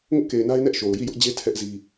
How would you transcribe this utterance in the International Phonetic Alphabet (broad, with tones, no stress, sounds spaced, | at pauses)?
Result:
ŋ ʊ˦ ʔ k e˨ ɪ̯ n a˦ ɪ̯ n ɛ˦ ʔ ʃ o˨ ʊ̯ j i˦˨ j ʊ˦ ʔ d͡ʑ e˦ tʰ ɛ˦ ʔ z i˦